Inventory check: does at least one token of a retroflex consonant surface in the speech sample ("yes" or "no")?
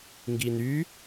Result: no